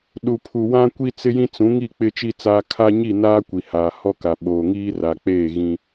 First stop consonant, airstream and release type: implosive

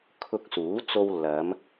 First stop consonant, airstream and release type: aspirated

